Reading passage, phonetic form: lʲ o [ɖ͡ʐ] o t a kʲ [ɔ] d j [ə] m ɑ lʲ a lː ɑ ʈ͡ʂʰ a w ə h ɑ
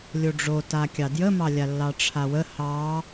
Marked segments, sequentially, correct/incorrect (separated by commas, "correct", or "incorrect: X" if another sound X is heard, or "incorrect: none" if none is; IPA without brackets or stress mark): correct, incorrect: ɑ, correct